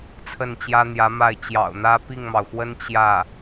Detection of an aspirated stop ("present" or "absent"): present